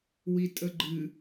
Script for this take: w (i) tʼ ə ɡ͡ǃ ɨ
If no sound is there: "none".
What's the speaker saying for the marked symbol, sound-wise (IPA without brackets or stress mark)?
i